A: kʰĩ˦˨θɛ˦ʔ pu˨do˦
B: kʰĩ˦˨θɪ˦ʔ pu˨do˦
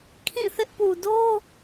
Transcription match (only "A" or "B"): B